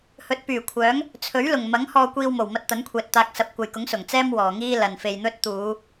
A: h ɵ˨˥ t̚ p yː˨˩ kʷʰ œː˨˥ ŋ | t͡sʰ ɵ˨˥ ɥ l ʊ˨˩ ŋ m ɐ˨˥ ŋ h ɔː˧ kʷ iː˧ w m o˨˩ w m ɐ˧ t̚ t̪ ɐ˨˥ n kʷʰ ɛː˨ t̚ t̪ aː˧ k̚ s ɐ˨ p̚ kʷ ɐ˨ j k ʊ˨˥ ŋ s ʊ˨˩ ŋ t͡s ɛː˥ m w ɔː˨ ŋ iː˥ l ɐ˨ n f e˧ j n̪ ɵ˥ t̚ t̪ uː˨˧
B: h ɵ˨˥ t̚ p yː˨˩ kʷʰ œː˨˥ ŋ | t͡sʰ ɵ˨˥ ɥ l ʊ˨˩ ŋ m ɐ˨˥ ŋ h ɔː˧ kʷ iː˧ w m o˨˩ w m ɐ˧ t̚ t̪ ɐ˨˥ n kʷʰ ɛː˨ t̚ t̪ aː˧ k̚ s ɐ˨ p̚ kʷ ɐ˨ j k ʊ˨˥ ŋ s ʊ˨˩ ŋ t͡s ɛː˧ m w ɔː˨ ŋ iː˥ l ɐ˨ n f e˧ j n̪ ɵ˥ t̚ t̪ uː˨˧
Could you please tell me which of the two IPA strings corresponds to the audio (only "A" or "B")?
A